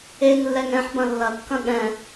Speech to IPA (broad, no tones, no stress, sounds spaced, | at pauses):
e ŋ lː ɛ ŋ ɛ̃ ħ b ɐ̃ lː ɐ kː ɐ̃ ɠ ɛ̃